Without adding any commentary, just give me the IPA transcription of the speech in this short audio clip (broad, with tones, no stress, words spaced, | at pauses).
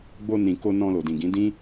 ɡ͡bo˧nĩ˨ ko˧ nɔ̃˧lo˨dĩ˨ɡĩ˨˦ dĩ˦